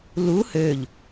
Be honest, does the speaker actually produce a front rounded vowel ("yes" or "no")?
yes